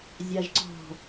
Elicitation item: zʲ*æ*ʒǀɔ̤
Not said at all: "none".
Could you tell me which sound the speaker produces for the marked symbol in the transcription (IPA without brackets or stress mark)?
a